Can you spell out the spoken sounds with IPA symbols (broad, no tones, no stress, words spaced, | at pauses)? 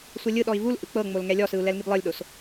sʷelʲɯɗɔi̯ vul ʔɯk͡pɤŋ͡mol ŋɛlʲɔsɯu̯ lɛlŋiblˠɤlʲɗos